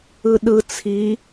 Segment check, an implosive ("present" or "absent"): present